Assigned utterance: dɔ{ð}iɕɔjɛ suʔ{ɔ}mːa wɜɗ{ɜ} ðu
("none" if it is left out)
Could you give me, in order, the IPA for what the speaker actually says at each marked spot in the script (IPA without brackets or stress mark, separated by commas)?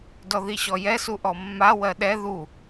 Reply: ð, ɔ, ɛ